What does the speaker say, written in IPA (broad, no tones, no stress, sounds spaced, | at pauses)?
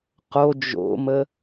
q o d͡ʒ o̰ m ə